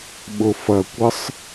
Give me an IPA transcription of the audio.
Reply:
ɓ ʊ f ɐ kʷ ɘ sˤ

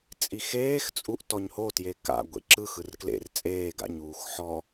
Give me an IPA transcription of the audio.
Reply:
t͡sʼ i x eː x t͡sʼ u ʔ t ɔ ɲ h o t j e k a̰ ɡʷ ḛ ǁ ɯ x ɯ r k l ḛ r t͡sʼ eː ɡ a̰ ɲ uː x ħ ɔ

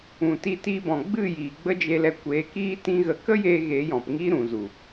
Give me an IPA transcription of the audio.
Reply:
ũ˨ t i˧ t i˧ b ɔ̃˨ ɡ͡b ɨ˦˨ j iː˨ ɡ͡b ə˦ d͡ʒ e˧ l ɛ˧ kʷ eː˨˦ k iː˦ t ĩ˦ ɣ ə˧ k ə˦ j eː˧ ɣ e˨˦ j ɔ̃˨ p ŋ iː˦ ɾ ũ˨ z u˨

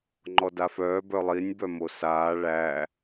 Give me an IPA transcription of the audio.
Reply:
ŋ͡ǃ ɔ d a f œː b œ lˠ i nʲ b œ m o s aː ɭ æ

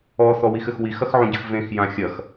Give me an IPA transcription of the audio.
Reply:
ɔ θ ɔ w i x ɘ x w i x ɐ x ʕ ũ ɟ ɨ x v ẽ x j ã xʲ ɐ x

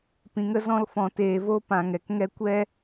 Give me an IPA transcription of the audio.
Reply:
p ĩ˧ ŋ ə˦ z ɔ̃˦ l f ɔ̃˧ t eː˧ v o˦ p ã˧ ŋ ɛ˨ k ŋ ɛ˦ kʷ ɛ˦

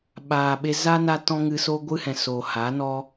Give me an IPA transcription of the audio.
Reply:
ɓ aː˨ ɓ e˧ z a˦ n a˦ t ɔ̃˦ ŋ ɨ˧ s o˦ ɡʷ ɨ˦ h ɛ̃˨ s o˨ h a˨˦ n ɔ˦

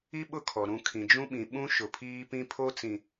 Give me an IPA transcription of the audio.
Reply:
i˦ ɓ ʊ˦˨ kʰ ɔ˨ ɾ ũ˨ kʰ ĩ˨ d͡ʒ ũ˦ ɓ ĩ˨ ɓ ũ˦ ʃ ʊ˨ pʰ iː˦ p ĩ˦ pʰ o˦ t͡s ĩ˨

